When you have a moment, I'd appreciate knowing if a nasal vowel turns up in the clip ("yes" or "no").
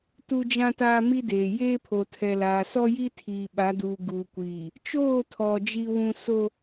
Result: yes